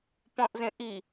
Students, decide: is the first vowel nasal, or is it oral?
nasal